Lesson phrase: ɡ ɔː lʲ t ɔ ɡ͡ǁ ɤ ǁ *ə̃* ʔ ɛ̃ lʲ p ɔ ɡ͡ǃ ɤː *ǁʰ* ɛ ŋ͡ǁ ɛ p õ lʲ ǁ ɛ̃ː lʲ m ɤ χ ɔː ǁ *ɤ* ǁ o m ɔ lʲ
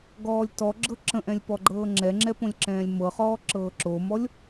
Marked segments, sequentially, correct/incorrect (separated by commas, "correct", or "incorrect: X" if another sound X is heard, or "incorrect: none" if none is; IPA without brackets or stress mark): correct, incorrect: ŋ͡ǁ, incorrect: ɤː